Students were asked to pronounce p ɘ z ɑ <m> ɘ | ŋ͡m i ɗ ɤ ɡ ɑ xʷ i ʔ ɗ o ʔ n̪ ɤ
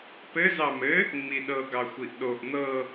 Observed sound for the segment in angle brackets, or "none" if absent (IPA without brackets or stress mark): m